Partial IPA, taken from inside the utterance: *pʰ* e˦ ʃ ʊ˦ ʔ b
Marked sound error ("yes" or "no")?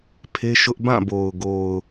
no